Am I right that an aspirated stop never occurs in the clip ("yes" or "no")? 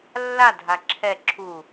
no